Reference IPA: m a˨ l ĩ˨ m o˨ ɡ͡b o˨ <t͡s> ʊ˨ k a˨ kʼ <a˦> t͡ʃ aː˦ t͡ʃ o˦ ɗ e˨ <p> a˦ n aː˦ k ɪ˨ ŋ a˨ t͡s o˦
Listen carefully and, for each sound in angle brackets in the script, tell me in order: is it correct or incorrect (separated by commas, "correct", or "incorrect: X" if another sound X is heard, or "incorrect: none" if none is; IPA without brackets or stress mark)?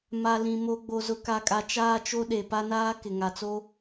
incorrect: z, incorrect: a˨, correct